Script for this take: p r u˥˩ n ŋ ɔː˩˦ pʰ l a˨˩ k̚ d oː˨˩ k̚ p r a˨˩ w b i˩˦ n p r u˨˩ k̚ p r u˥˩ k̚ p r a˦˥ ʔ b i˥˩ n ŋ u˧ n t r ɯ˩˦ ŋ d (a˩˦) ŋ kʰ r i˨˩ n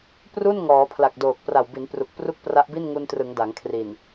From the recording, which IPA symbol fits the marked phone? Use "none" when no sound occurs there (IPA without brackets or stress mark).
a˩˦